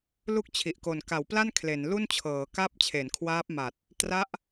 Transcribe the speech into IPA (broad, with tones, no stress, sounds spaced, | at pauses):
l u˥˩ k̚ t͡ɕʰ i˨˩ ʔ k o˨˩ n k a˩˦ w p l a˥˩ n kʰ l e˩˦ n l u˥˩ n t͡ɕʰ ɤː˩˦ k a˥˩ p̚ t͡ɕʰ e˩˦ n kʰ w aː˦˥ p̚ m a˨˩ t̚ | t r a˦˥ ʔ